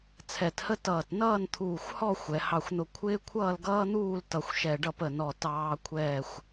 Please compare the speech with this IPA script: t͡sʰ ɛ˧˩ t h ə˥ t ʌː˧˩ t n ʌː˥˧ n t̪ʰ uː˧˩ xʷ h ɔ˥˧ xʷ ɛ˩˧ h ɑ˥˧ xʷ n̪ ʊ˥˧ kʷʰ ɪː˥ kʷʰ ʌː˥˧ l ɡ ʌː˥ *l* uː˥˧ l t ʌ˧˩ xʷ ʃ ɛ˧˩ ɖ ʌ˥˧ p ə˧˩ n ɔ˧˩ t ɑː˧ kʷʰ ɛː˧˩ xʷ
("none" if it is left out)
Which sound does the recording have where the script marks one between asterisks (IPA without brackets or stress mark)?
n̪